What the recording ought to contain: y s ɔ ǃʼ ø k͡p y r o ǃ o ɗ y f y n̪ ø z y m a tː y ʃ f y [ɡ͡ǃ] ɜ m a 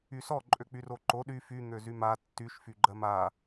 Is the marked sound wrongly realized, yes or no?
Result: no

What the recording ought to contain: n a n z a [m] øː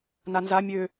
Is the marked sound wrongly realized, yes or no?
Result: yes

